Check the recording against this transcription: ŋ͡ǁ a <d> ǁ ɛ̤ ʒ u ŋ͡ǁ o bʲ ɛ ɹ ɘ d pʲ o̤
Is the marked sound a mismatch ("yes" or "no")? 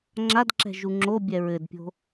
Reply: no